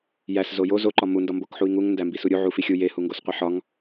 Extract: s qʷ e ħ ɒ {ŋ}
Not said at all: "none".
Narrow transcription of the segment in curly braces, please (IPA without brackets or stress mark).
ŋ